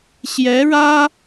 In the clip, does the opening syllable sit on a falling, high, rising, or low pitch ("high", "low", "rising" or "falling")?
rising